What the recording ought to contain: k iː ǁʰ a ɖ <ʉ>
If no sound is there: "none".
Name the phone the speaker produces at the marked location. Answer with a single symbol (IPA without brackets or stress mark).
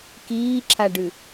ʉ